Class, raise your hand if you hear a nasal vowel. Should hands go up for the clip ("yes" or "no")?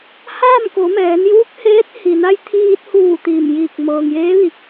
no